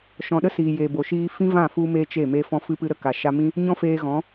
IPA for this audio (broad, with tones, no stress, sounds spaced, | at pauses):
ʃ ɔ̃˨ ɗ ə˦ s iː˨ j e˨ b o˨ ʃ iː˧ f ĩ˦ v ã˦˨ f u˧ m e˧ t͡ʃ e˦˨ m e˦ f ɔ̃˦ f ɨ˦ p ɨ˦ ɾ ə˨ k a˨ ʃ a˧ m ĩ˦ | ɲ ɔ̃˦ f eː˧ ɣ ɔ̃˨˦